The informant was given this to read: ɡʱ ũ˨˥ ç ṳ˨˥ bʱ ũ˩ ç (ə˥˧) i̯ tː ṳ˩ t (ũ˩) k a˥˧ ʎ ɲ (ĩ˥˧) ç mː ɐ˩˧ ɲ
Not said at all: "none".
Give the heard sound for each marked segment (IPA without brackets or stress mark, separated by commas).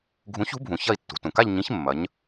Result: ɐ˥˧, ũ˩, ĩ˨˥